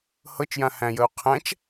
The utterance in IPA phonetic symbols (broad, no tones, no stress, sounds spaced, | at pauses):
h ɤ t͡ʃ j ã h æ̃ j ə u̯ qʰ æ̃ t͡ʃ